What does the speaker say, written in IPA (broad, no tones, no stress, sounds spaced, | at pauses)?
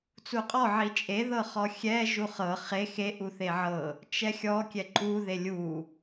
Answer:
t͡s u qʼ ɔ ʕ i t͡ʃʼ e ð ɤ χ ɔ xʲ ɛ ʒ u χ ɤ χ e x e ʔ u θ e ʕ ɤ | t͡ʃ ɛ xʲ ɔ kʲ ɛ ǃ u ð e lʲ u